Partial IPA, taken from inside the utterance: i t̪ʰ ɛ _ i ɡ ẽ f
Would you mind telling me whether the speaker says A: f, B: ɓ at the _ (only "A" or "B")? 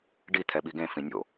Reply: B